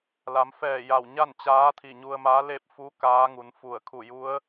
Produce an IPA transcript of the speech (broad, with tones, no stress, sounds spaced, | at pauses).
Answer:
l a˩˧ m f ɛː˧˩ j a˧˩ w ɲ a˥˨ n t͡ɕ aː˧˥ t̪ʰ i˧˩ ɲ u˧ ə̯ m a˧˥ l e˥˨ p̚ f u˧˥ k aː˧˥ ŋ u˩˧ n f u˧˩ ə̯ kʰ u˧˩ j u˧˥ ə̯